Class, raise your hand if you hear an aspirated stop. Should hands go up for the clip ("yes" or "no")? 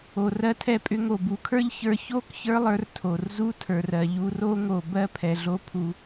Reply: yes